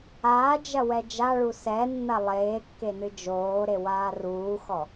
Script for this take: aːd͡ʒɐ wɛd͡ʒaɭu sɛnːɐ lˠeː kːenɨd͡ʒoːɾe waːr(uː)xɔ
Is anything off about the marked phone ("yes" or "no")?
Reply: no